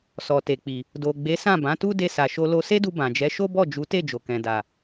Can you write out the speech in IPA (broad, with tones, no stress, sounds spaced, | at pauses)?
s ɔ˨ t e˨ k͡p i˨ | d o˨ ɡ͡b e˨˦ s ã˦˨ b ã˨˦ t u˦ d e˧ s a˨ ʃ o˧ l o˧ s e˦ d u˧ b ã˨ d͡ʒ ɛ˨˦ ʃ o˦ b ɔ˦˨ d͡ʒ u˨˦ t e˦˨ d͡ʒ o˨ k ɛ̃˨ d a˨